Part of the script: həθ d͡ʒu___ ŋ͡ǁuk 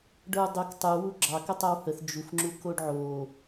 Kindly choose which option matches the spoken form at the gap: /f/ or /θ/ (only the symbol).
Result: f